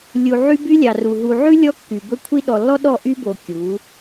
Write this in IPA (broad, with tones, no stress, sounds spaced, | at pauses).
lʲ u˨ ʕ y˦ b y˦ lʲ ɑ˨ r u˨ ɦ u˨ ʕ ʉ˦ lʲ ɔ˦ kː y˨ b ɵ˦ kʷʰ i˦ ɗ ɔ˨ lː ɔ˦ ɗ ɔ˦˨ ʔ y˦ b o˨ kʲ u˨˦